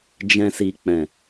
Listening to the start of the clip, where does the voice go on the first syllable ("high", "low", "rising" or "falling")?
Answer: low